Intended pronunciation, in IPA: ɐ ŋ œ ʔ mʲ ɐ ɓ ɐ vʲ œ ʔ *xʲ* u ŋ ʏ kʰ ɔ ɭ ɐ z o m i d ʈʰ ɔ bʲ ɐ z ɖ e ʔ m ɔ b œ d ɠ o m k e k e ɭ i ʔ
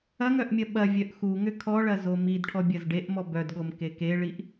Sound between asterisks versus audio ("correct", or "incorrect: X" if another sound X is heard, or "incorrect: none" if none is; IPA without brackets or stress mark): incorrect: x